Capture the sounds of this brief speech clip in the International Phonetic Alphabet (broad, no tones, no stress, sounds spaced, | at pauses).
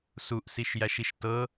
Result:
s u ʔ s i ʃ j æ ʃ i ʃ t ɤ